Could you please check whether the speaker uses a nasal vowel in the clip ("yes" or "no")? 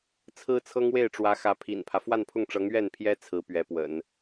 no